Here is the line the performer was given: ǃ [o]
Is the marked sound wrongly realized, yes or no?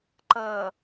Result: yes